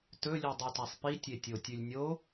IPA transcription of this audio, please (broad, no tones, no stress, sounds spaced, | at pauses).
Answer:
t ɵ lʲ u dˤ ʉ t a sˤ p i tʲ e tʲ o tʲ ʉ lʲ nʲ o